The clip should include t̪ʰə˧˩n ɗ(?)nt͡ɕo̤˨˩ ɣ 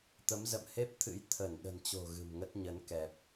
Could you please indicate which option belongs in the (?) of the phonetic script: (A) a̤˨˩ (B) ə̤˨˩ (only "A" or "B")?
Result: B